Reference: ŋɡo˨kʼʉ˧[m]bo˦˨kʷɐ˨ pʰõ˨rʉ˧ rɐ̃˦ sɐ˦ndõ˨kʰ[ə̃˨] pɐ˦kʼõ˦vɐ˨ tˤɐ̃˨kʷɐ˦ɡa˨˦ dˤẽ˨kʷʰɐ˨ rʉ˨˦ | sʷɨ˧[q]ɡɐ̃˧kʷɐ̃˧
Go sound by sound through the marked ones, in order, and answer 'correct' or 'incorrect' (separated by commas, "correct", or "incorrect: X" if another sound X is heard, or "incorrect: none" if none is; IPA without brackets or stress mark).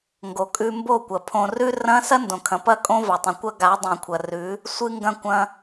correct, incorrect: ɐ̃˨, incorrect: ŋ